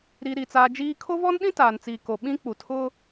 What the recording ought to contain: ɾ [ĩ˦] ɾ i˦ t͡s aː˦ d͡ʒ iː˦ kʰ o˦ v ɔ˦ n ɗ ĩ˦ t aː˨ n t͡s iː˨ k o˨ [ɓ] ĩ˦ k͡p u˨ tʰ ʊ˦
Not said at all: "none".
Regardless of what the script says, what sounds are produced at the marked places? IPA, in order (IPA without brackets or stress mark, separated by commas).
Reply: i˦, ɓ